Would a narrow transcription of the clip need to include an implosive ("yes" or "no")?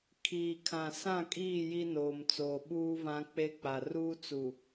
yes